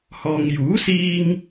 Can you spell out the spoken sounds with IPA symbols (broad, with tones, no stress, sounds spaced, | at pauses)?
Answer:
h ɔː˨ ŋ j uː˨˥ s iː˧ ŋ